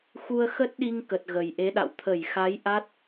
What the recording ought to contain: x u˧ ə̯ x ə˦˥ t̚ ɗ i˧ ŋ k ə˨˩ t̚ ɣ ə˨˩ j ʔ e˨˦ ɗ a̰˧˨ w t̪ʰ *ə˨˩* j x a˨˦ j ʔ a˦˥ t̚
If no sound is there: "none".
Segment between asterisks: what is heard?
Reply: ə˧˩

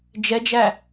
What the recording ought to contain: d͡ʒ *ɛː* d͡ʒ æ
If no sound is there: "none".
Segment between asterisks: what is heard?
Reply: ɛ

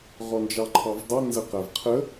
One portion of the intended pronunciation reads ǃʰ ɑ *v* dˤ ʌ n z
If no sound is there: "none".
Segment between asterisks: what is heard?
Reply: v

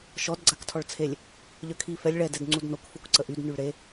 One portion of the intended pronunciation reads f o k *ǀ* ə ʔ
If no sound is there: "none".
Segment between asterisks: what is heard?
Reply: ǀ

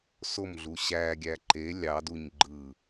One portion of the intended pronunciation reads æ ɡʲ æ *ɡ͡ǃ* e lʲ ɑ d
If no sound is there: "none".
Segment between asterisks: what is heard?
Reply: ǃ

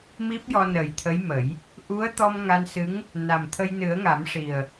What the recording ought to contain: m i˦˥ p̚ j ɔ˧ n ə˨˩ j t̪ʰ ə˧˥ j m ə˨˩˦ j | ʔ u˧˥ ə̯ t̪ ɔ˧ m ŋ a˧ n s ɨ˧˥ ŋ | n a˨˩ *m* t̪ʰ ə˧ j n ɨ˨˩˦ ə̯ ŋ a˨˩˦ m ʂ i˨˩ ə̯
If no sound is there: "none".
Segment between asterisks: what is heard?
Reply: m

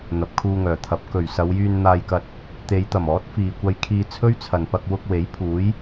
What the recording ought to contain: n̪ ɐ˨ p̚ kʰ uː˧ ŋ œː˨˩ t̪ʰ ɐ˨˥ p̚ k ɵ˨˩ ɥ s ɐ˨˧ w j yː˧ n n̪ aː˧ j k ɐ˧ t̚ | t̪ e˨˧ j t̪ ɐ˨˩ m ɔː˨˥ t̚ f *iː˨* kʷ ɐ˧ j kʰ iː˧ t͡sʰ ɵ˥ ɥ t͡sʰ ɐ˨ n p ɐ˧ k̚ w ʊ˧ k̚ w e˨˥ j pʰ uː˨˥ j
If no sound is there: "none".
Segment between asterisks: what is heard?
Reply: iː˨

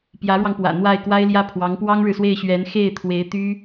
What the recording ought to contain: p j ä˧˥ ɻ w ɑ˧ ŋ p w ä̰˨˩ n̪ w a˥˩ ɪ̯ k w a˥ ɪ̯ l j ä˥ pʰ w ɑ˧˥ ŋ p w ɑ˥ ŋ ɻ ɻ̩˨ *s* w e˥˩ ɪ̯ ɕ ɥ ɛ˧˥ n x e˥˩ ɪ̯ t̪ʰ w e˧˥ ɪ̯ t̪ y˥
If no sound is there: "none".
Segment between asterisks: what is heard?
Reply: s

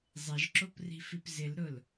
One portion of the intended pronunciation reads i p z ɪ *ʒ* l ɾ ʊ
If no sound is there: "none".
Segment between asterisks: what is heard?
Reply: none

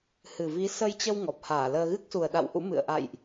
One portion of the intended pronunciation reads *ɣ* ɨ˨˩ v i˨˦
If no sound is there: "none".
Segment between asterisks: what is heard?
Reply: h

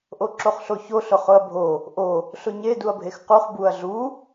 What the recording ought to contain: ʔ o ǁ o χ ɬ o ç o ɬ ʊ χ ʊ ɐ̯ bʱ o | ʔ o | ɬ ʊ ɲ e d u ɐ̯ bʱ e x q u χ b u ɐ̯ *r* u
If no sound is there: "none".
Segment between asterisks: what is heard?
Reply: ɮ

